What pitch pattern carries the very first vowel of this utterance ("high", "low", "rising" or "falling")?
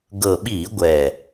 low